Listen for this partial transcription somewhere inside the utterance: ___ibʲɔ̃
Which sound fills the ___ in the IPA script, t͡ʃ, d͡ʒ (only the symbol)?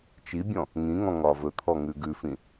t͡ʃ